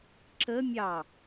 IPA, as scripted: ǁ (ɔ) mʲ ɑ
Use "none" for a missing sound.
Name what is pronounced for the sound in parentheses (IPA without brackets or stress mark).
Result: ə